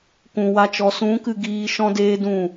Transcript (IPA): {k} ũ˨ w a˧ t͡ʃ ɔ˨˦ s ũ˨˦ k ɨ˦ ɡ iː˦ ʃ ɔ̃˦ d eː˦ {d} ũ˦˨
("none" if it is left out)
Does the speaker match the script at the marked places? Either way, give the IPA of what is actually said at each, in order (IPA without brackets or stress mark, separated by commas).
k, d